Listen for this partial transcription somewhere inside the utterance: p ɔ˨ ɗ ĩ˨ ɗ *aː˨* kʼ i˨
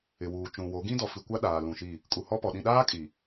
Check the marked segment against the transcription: incorrect: aː˦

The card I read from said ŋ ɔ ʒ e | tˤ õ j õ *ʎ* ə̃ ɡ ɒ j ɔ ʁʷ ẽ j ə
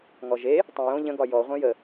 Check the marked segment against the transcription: correct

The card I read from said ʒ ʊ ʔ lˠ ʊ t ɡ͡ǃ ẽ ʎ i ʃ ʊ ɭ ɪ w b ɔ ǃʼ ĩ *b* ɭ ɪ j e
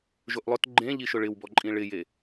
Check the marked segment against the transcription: incorrect: none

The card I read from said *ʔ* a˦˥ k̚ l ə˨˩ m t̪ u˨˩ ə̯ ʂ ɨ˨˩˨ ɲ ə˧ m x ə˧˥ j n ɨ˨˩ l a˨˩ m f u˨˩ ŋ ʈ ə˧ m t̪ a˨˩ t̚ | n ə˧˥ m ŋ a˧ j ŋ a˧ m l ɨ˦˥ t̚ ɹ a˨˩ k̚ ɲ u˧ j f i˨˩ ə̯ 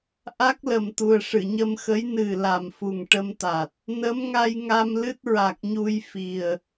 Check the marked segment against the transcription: correct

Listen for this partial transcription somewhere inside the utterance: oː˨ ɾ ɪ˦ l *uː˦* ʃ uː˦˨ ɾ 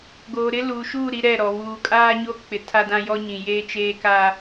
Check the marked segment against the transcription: incorrect: uː˨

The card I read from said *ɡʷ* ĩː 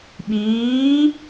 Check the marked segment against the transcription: incorrect: ɓ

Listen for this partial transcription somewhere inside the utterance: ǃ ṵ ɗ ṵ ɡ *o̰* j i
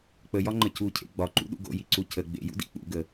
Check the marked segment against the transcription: correct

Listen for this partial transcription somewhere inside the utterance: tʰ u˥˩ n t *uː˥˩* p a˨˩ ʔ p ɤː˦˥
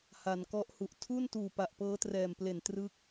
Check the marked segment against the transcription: incorrect: uː˨˩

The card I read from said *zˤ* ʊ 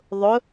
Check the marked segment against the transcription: incorrect: ðˤ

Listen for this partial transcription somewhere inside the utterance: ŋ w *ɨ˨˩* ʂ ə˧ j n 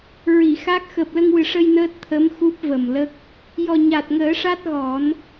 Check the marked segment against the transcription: correct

